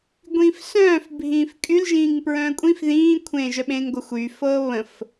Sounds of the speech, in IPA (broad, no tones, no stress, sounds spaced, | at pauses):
ɡʷ ĩː f s œ̃ː f bʱ ĩː f kʼ y l ʒ ĩː ŋ p ɹ œ̃ː kʷʼ ĩ f ð ĩː kʷʰ ẽː ʒ œ ɓ ẽː ŋ ɡʷ ə xʷ y f ɤː β ə̃ f